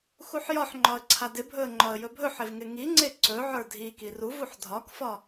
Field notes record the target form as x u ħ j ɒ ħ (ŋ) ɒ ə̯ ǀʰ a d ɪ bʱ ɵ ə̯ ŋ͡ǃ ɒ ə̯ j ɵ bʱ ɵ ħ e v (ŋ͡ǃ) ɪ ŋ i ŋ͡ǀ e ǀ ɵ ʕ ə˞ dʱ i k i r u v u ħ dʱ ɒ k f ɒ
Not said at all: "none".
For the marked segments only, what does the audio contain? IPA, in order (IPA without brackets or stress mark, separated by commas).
ŋ͡ǃ, ŋ